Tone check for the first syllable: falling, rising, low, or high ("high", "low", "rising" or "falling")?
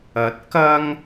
rising